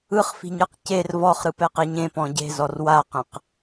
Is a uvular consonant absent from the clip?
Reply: no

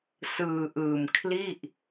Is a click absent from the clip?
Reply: yes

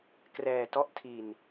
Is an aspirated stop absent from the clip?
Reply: no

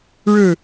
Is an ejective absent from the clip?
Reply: yes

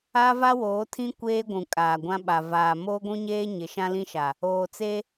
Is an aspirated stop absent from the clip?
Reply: no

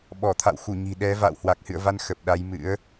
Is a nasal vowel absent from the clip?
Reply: yes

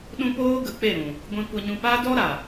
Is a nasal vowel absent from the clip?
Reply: no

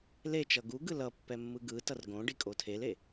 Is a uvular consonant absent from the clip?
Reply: yes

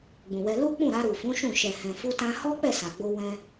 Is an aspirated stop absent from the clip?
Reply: yes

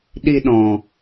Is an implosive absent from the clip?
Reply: no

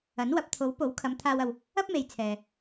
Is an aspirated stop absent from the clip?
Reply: no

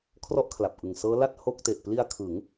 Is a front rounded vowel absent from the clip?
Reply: yes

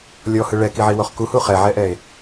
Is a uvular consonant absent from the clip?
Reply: no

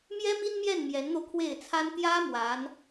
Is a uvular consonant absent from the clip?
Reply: yes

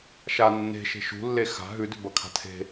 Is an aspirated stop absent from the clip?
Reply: no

